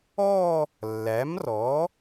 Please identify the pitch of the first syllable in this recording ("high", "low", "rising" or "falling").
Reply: falling